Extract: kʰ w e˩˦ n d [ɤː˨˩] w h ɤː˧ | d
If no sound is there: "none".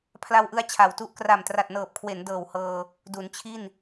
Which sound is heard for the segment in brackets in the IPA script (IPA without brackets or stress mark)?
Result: ɤː˨˩